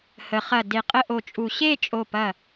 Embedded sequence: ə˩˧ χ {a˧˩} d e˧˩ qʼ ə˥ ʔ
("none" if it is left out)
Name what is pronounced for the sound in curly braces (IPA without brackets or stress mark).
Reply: ɐ˧˩